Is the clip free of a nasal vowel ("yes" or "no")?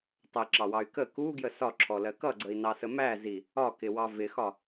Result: yes